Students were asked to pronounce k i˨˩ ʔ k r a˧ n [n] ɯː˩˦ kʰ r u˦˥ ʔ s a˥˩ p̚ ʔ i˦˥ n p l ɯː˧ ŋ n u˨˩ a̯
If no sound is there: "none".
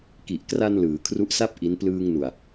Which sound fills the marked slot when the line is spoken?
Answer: l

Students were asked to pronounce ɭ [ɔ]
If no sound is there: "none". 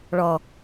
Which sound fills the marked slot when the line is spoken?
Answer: ɔ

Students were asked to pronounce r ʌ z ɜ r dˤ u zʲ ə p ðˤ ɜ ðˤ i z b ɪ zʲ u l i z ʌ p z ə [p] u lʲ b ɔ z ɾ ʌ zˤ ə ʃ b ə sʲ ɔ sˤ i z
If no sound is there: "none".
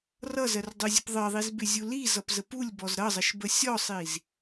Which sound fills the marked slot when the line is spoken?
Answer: p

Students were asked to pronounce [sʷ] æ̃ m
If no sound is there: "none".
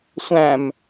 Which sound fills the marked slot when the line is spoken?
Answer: sʷ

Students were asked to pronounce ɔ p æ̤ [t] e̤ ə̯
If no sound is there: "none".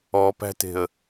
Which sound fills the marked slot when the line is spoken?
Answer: t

